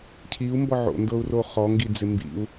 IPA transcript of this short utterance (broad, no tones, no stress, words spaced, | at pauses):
cʰiu̯ mbɔʕo̰ndɤu̯ roχɔŋɡid͡zɪ mbḭu̯